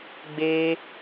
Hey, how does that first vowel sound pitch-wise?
high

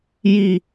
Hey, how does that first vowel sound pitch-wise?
high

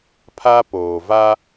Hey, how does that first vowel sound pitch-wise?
high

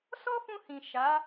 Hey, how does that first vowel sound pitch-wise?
high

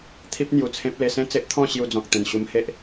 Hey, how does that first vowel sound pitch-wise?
high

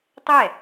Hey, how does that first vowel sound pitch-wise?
falling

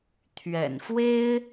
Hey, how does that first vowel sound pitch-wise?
low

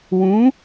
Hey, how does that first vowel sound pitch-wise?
rising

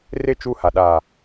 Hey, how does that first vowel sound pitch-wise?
falling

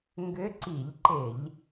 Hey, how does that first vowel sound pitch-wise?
rising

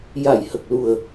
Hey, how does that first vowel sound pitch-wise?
low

